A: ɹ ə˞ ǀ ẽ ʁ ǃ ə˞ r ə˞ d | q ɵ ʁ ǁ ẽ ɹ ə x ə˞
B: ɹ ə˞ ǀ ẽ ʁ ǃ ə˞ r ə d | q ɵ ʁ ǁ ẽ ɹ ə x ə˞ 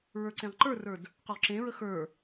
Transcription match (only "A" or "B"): A